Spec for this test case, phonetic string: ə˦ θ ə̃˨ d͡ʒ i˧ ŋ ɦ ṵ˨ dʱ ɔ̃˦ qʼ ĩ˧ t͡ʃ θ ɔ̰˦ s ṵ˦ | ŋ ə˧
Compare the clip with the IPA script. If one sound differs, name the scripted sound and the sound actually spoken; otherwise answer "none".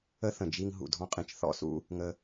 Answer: none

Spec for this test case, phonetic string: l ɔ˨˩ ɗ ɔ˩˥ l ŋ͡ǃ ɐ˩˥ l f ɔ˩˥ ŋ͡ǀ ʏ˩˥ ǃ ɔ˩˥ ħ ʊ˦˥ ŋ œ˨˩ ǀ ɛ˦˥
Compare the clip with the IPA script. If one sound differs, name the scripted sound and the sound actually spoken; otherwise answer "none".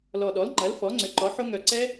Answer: none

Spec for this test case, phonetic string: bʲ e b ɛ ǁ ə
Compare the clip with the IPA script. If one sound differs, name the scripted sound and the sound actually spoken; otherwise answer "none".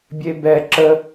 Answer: none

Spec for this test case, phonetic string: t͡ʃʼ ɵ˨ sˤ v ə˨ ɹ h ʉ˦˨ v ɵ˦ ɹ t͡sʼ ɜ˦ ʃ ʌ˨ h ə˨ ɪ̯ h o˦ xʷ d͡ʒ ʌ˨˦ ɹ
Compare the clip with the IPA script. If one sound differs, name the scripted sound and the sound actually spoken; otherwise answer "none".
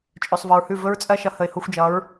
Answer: none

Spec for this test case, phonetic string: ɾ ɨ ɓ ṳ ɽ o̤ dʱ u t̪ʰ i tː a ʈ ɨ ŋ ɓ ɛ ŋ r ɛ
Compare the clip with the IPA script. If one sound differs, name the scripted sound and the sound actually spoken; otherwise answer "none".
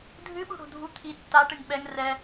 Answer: ɾ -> dʱ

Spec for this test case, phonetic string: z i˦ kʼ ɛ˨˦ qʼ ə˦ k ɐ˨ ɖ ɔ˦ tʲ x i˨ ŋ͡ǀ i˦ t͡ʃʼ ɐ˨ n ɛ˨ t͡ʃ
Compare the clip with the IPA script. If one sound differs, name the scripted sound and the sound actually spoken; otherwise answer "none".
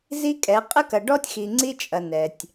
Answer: t͡ʃ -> tʲ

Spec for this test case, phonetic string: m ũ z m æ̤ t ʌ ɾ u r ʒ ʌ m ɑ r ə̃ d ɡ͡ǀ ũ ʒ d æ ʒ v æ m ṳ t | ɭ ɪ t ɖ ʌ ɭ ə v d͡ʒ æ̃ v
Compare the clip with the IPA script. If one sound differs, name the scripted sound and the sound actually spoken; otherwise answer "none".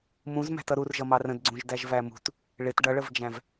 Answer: none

